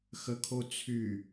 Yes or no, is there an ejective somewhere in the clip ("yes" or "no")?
no